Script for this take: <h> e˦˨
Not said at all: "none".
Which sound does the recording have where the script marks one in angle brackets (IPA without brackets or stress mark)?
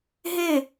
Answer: ɦ